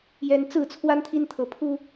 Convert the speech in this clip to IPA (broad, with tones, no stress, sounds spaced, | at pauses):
j ɛ˦ n t͡s ɹ̩˥˨ t͡sʰ w a˦ n t̪ʰ i˦ n t̪ʰ ɤ˨˦ pʰ u˦